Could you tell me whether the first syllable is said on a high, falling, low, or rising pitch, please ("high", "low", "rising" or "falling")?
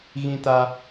high